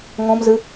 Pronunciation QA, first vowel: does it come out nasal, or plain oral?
nasal